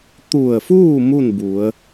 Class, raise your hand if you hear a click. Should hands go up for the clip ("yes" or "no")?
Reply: no